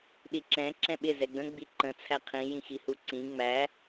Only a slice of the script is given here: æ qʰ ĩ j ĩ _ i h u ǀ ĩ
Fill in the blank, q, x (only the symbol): x